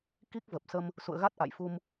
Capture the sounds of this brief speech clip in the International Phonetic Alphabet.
k i˦˥ k̚ v ə˨˩ p̚ s ə˧ m | s ṵ˧˨ ə̯ ɣ a˦˥ t̚ ʔ a̰˧˨ j f u˧ m

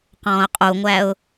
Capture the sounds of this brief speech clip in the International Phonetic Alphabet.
q ɔ̃ː ʊ̯ qʼ u ŋʷ æ ʊ̯

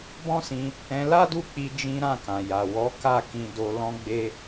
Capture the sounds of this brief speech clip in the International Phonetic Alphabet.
b ɔ̃˦ s ĩ˧ | ɛ̃˧ l a˦ d u˦˨ k͡p i˧ d͡ʒ ĩ˦ ɾ ã˦˨ k ã˨ j a˨ w ɔ˨˦ k a˦˨ k ĩ˧ d o˧ l ɔ̃˧ ɡ͡b e˧

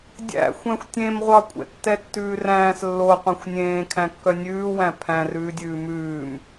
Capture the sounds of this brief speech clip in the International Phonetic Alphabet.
dʲ æ̰ xʷ æ̃ xʷ tʲ ẽ m ʁʷ ɑ kʷʼ ɛ̰ tː ɛ tː ʉː r æ̃ː s lː o qʷ ẽ xʷ nʲ ẽː kʰ æ̃ kː œ nʲ ʉː w æ̃ pʰ æ̃ r ʉː dʲ ʉː m ʉː m

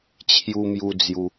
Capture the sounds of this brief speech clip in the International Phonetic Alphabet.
t͡ɕʰ j u˧ m j u˧ d͡z j u˧

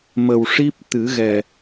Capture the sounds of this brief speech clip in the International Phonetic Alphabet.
m ə˨˩ w ʂ i˦˥ p̚ t̪ ɨ˨˩˦ ɣ ɛ˨˩

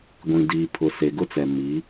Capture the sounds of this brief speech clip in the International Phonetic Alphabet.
ɡʷ ĩ˨ d iː˨ pʰ ʊ˨ s e˨ ɡ ʊ˦ t͡s ɛ˨ m i˨˦

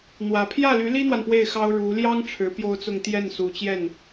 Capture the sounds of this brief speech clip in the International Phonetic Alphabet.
n̪ w ä˨˩ pʰ j ä˥˩ l y˧˥ l i˥ n̪ w a˨ n p w e˥˩ ɪ̯ x ɑ˥ ʊ̯ ɻ u˧˥ l j ɑ˥ ŋ ʈ͡ʂʰ ɻ̩˧˥ p j o˥ ʊ̯ t͡s ʊ˥˧ ŋ t̪ j ɛ˥˩ n s u˨˩ t͡ɕ j ɛ˥˩ n

